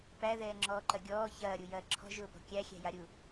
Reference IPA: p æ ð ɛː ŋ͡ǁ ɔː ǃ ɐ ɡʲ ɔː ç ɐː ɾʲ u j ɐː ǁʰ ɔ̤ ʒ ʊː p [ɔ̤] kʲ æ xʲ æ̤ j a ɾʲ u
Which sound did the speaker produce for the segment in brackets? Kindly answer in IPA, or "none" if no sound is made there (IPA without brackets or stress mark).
ɔ̤